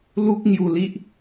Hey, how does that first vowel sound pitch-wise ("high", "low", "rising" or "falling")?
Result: high